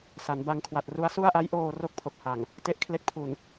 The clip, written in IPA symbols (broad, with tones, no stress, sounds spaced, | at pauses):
s a˩˦ n b a˧ ŋ kʰ w a˨˩ t̚ r u˦˥ a̯ s u˥˩ a̯ ʔ a˦˥ j ʔ oː˧ r o˥˩ k̚ pʰ o˨˩ k̚ h a˨˩ ŋ | t e˦˥ ʔ kʰ l e˦˥ k̚ pʰ u˨˩ n